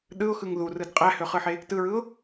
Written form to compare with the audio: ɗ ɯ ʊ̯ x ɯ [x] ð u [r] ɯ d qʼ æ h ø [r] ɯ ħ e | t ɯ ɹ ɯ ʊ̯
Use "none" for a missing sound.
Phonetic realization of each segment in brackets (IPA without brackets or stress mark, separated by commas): ŋ, r, χ